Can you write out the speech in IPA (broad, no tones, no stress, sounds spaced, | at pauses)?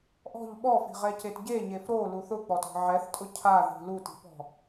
ʔ ɔ̤ ʎ ɓ ɔ f i̤ ʁ ɛ c e t ɟ e ɲ e f ɾ o l u θ ʊ k͡p ɔ t ɔ̤ ʕ ɛ θ tʼ ʊ cʰ a ð i̤ l u t i̤ p ɔ̤